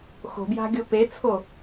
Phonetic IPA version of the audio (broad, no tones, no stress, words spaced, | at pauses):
xo̤bja̤ɡʲo pet͡sʰo